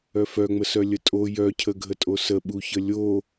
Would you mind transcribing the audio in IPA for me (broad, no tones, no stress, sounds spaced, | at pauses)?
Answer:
œ f œ ŋ͡m ə s œ lʲ ə tʼ o j œ cʰ ə ɡʱ ə tʼ o s ə ɓ u ç ə lʲ o